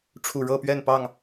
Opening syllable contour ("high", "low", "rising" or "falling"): low